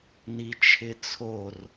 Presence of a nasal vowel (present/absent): absent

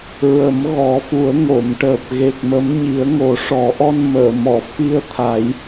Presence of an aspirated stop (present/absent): present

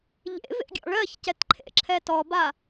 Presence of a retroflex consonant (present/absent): present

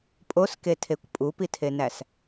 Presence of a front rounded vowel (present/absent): absent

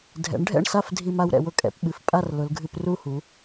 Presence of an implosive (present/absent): present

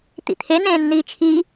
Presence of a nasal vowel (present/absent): present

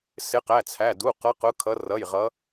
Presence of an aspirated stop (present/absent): present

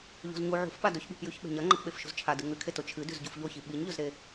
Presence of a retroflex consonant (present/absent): absent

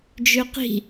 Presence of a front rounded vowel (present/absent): present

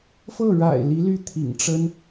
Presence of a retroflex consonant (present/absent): present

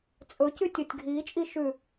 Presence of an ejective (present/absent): present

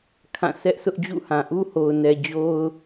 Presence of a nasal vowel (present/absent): present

